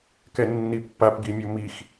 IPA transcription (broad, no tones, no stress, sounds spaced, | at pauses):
k ɛ nː i pː a p ɡ i mʲ o m i x